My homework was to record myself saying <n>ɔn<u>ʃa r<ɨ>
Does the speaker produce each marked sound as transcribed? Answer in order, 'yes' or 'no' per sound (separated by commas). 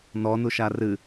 yes, yes, yes